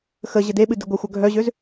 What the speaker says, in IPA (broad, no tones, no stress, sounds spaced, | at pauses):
x ə ʑ ə d e ɓ ɨ d ɨ ɡʷ ə xʷ œ ɡʱ œ ʑ ø z